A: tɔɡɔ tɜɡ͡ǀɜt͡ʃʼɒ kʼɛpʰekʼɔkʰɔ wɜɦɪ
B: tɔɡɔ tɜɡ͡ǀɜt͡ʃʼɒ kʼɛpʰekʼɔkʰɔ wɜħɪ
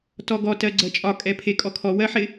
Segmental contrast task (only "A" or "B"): B